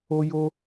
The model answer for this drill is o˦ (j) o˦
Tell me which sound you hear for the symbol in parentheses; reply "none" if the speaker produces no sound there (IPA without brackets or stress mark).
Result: j